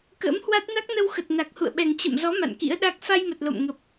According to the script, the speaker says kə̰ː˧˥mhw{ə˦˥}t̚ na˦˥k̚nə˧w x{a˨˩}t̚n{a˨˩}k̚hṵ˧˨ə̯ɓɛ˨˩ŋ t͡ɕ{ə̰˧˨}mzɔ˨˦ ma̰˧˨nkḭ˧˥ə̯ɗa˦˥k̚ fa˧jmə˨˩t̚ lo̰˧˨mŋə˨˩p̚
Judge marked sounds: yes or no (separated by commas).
no, no, yes, yes